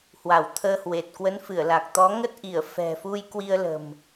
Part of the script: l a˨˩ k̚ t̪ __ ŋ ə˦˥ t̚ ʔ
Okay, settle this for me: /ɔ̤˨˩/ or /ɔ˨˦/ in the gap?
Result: ɔ˨˦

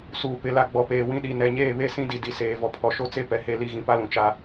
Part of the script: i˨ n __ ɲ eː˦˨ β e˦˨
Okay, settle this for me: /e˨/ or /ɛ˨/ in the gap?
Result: ɛ˨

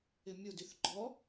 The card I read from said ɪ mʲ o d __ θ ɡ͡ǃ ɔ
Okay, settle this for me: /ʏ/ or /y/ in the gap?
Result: y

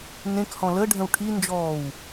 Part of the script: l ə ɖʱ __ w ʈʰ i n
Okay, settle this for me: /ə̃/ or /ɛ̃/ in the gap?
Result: ə̃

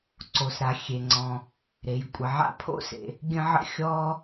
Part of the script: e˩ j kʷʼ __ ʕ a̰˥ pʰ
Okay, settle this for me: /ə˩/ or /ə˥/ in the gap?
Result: ə˩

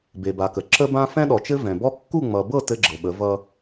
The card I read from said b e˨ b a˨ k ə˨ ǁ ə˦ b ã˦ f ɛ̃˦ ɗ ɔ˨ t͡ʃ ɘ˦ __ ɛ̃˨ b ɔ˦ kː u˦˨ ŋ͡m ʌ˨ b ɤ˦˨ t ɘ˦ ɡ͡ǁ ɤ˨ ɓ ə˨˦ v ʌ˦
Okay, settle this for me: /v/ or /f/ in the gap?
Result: v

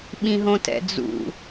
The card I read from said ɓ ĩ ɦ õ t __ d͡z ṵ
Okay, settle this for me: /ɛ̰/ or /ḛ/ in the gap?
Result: ɛ̰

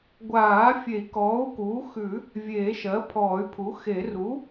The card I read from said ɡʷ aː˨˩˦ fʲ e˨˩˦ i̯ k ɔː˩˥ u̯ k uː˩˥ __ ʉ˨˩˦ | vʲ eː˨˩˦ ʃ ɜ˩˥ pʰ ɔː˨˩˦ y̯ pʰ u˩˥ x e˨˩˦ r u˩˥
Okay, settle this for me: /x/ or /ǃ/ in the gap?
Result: x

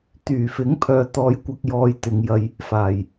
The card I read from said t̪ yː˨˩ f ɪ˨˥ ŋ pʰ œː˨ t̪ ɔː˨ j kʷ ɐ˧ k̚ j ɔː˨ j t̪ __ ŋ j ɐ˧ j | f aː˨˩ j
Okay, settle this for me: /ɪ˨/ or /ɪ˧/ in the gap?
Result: ɪ˨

